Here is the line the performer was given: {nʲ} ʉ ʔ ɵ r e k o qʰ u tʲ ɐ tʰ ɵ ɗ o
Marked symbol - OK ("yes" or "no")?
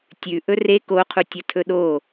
no